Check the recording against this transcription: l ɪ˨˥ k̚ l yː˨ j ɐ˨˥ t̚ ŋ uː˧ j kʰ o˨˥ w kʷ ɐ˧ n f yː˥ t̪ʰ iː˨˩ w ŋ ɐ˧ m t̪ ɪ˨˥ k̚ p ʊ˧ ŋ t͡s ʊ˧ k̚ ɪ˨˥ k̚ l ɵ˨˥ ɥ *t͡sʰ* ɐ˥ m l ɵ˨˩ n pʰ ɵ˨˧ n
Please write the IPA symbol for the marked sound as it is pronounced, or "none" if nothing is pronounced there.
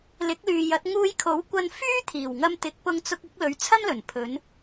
t͡sʰ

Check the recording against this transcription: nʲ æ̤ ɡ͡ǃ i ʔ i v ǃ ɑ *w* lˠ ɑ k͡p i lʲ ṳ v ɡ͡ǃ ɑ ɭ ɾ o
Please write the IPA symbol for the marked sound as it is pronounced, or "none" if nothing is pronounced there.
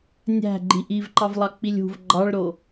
v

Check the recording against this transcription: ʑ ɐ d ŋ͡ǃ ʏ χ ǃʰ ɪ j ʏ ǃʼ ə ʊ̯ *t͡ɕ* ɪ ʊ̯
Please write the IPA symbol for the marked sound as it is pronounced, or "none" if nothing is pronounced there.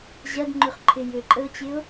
t͡ɕ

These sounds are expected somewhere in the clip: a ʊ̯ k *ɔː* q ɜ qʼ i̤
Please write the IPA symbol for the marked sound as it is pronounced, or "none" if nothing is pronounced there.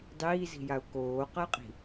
oː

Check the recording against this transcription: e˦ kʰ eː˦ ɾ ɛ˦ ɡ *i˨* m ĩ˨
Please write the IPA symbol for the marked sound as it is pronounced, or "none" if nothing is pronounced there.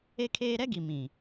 i˨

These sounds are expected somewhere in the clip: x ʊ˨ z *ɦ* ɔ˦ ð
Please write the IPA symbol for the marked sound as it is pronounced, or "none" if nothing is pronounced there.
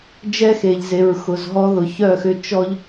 ɦ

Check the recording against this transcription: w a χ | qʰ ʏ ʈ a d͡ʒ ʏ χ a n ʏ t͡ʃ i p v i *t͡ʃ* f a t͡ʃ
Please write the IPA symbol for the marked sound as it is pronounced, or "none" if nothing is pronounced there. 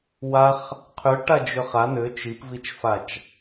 t͡ʃ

